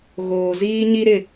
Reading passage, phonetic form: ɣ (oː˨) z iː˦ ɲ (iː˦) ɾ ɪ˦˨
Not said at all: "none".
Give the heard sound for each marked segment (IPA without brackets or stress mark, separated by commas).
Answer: oː˨, i˦